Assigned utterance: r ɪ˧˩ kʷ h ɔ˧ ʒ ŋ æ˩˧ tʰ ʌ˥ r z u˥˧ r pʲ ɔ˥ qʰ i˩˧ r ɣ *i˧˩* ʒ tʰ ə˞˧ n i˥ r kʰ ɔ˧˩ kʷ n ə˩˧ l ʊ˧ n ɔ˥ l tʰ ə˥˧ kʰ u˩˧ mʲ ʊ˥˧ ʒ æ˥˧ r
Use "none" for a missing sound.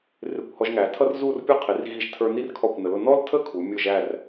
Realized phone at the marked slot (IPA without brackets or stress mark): i˧˩